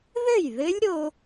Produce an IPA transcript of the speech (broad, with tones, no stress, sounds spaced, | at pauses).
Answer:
ð ɘ˥˩ j ð ɘ˦˥ lʲ ɾ o˧